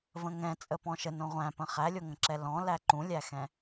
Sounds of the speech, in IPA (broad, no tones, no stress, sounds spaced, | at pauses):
v ə̃ ŋ ɛ̃ t͡sʼ ə p ɔ̃ ʃ ə n õ ʁʷ æ̃ p ə̃ χ æ lʲ o ŋ ə̃ ǁ ɛ l ɔ̃ l æ ǃ ũ lʲ æ x ɛ̃